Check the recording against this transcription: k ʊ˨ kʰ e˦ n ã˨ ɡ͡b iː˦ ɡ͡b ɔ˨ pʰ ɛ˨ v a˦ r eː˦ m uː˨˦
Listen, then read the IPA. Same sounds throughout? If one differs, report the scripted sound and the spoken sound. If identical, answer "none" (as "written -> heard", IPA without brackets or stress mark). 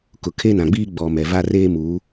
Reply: pʰ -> m